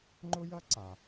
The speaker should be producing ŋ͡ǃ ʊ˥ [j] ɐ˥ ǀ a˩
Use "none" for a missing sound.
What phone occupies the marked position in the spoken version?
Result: j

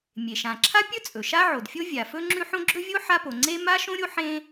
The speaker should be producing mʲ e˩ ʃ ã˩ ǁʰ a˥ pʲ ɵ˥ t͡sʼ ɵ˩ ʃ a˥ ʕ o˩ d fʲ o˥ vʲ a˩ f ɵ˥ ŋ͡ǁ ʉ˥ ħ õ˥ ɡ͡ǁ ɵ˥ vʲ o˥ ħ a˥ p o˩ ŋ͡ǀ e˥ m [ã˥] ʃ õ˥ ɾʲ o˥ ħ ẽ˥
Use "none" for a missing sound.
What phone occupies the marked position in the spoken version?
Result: a˥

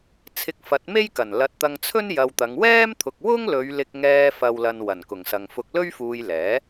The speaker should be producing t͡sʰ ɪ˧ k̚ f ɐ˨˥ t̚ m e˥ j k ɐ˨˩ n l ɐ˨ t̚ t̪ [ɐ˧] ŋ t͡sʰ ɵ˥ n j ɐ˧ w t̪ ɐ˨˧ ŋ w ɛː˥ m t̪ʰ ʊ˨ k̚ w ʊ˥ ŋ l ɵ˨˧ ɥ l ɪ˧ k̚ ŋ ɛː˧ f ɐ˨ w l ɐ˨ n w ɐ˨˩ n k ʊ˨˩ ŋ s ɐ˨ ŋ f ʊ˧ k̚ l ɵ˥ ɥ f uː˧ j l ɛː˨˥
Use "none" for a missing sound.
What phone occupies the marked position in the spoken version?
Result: ɐ˧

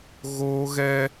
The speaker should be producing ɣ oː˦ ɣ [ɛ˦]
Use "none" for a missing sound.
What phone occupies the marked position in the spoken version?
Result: ɛ˦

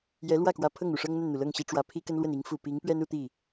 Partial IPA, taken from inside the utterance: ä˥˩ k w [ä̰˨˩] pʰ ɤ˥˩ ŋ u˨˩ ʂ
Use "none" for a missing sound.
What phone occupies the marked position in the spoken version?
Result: ä˧˥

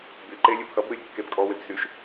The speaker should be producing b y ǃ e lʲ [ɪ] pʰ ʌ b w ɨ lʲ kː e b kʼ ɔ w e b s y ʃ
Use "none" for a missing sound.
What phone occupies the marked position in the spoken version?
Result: ɨ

